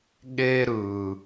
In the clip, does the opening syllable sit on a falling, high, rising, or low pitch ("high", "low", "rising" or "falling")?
high